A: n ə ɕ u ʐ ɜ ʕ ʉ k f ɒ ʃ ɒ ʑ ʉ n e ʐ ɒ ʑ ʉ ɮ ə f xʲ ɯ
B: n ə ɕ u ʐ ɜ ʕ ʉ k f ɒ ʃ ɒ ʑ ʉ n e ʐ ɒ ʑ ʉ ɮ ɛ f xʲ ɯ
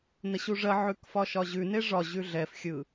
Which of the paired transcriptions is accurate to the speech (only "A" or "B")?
B